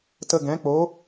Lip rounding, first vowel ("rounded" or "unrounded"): unrounded